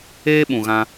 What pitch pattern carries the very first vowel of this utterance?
high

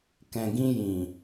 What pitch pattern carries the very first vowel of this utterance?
low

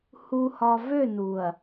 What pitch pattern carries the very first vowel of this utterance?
low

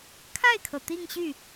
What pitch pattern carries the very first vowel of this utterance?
falling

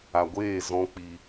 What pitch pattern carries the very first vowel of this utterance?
low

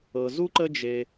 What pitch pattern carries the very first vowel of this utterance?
low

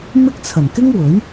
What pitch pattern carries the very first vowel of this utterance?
high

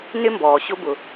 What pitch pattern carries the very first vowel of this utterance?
high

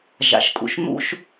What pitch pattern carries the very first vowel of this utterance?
low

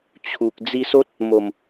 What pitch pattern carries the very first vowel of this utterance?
low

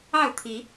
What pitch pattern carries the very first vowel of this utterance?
falling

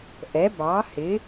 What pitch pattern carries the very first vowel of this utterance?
rising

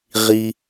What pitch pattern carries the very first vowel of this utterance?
low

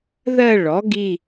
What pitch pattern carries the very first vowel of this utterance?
falling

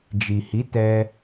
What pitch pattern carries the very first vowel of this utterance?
low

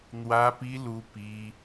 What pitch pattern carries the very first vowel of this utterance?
high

